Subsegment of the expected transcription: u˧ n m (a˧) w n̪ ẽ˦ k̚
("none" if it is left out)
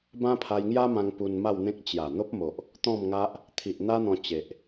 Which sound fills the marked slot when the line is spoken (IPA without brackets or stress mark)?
a˥˧